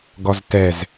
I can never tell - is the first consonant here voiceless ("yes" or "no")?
no